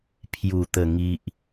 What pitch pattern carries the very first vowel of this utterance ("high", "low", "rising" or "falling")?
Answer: low